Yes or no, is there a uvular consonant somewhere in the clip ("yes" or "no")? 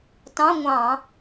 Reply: no